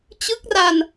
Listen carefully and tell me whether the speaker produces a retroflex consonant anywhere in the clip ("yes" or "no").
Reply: no